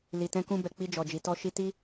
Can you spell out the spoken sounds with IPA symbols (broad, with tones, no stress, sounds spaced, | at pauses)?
l i˨ t ɛ̃˧ k ũ˧ b ɛ˨ k͡p i˧ d͡ʒ ɔ˨ d͡ʒ i˨ t ɔ˧ ʃ i˧ t i˦